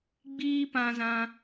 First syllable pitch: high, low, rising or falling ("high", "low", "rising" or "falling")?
high